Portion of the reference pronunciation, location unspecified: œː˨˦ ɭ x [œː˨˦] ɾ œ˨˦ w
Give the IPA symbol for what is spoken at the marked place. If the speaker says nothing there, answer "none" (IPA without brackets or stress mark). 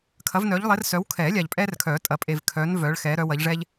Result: ɛː˨˦